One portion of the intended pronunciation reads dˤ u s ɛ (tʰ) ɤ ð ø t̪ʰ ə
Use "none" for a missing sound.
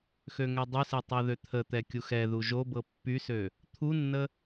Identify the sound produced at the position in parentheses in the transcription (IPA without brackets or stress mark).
tˤ